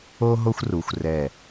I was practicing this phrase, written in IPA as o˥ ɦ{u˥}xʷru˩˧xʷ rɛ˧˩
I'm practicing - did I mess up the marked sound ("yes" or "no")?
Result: yes